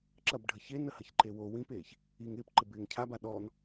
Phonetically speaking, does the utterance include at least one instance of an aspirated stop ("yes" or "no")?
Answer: yes